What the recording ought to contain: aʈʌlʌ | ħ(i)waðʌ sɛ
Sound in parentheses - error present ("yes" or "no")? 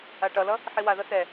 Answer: no